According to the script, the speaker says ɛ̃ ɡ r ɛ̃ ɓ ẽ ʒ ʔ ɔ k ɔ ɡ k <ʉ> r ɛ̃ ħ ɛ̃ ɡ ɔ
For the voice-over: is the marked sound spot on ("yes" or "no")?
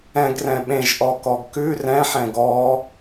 yes